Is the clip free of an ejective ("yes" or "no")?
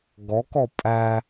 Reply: no